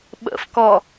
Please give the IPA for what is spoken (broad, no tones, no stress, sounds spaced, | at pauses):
ɓ ə̰ f k ɔ